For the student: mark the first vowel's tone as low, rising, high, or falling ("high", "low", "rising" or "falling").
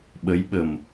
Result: rising